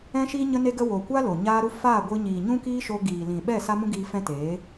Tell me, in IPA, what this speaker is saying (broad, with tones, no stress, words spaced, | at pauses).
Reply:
ɛ̃˦ʃiː˦ ɲə˧ne˧ɡə˧ wo˨ kʷa˦lo˨ ɲaː˧ɾu˧ faː˦˨ɡʷɨ˧ɲiː˨ ɲũ˦kiː˦ʃo˧ ɡiː˨lĩ˨ ɓɛ˦˨ sa˦mũ˦ɡiː˧ fɛ̃˦teː˨˦